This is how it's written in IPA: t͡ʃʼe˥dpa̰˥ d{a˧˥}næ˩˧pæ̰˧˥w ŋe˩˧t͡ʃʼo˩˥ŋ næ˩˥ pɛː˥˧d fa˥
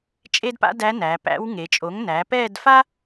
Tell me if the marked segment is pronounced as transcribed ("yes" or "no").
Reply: no